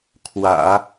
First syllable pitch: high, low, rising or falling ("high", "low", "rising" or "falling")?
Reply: low